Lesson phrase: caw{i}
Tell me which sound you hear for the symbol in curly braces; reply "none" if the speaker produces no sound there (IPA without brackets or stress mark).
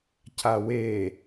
e